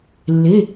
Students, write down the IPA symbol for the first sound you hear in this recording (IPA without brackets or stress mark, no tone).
lː